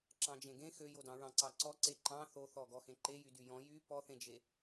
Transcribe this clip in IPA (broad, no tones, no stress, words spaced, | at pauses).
ǁɑ̃d͡ʒẽɡẽ xøjodɑ̃ ɹɑ̃ǀɑǀɔ ǀeǃɑ̃ θoθɔ ɡɔxẽǃejy dyjɔ̃ jy pɔθẽd͡ʒe